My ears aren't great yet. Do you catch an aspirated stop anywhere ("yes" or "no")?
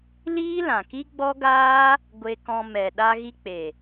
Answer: no